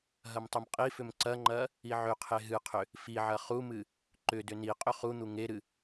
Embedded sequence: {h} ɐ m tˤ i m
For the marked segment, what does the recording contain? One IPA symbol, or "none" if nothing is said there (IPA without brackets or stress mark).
ɦ